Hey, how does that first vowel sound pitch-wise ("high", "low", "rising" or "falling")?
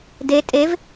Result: rising